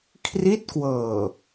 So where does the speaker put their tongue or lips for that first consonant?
velum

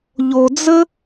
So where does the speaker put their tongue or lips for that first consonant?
palate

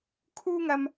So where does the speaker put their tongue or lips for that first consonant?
velum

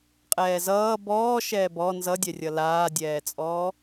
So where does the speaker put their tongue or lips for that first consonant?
uvula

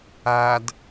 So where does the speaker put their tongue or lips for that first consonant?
tongue tip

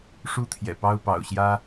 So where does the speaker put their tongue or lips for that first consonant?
retroflex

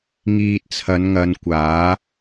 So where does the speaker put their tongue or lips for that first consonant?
velum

